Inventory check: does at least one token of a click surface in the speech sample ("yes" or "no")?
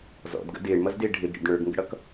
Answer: no